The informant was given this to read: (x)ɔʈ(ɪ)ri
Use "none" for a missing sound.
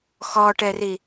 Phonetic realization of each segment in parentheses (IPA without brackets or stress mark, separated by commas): x, ɛ